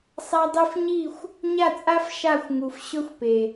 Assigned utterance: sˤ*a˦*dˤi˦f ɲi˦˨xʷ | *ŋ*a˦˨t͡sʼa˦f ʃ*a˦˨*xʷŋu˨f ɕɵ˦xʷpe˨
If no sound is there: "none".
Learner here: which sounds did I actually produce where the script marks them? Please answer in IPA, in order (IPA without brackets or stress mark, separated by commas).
a˦, ɲ, a˦˨